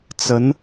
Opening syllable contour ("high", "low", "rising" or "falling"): rising